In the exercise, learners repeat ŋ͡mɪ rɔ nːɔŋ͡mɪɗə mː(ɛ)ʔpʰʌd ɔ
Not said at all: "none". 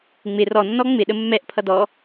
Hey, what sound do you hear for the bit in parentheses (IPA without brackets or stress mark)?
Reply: ɛ